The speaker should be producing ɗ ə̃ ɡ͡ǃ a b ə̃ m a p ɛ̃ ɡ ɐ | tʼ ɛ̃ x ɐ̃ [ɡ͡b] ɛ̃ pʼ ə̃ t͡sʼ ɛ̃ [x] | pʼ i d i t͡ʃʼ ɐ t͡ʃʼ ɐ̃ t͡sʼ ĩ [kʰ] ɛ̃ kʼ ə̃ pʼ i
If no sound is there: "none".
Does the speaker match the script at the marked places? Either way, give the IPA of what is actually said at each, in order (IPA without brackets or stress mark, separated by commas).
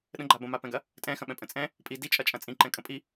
ɓ, none, ǃ